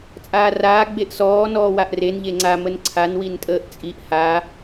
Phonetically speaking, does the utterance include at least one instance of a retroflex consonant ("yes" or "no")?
no